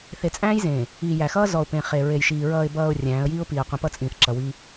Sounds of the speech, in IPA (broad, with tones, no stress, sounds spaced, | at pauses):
θ e˨ t͡sʼ æ̃ː˦ j z ẽː˨ | iː˨ j æ˨ x ʌː˦ z ɔ˨ ʊ̯ p ẽ˨ χ e˨ ɹ e˨ j ʃ iː˨ ɹ ʌː˨ ɪ̯ b ʌː˨ ʊ̯ rʲ æ̃ː˨˦ ə̯ j iː˦ ʊ̯ p iː˨ ə̯ qʷ ĩ˨ p ʌ˦ t͡sʼ ĩː˨ θ ǁ ʌ˨ w iː˦